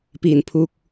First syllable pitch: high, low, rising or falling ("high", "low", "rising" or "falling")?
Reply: low